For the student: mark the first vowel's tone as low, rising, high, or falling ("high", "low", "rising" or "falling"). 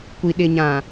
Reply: low